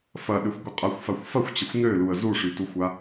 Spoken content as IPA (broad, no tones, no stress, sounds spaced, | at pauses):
f ɐ ɗ ø xʷ ɡʷ ə qʼ ɐ xʷ f a xʷ f ɐ xʷ t͡ɕ ə xʷ n ø l u ə̯ z u ʂ y t u xʷ a